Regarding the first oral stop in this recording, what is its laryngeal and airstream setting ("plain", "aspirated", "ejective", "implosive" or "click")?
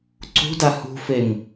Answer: click